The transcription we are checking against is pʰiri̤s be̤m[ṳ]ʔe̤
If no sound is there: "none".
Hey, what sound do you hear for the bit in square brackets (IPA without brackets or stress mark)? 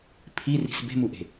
u